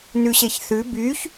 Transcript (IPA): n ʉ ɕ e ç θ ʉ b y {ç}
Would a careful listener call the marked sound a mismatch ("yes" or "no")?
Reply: no